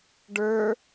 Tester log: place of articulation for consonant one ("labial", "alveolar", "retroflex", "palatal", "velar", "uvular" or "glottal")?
retroflex